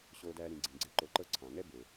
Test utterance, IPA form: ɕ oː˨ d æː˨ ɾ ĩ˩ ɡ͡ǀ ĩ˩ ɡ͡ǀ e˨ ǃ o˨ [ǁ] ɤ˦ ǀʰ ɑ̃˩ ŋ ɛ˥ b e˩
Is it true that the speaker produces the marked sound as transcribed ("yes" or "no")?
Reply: no